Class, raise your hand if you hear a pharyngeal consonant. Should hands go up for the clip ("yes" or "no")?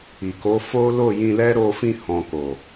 no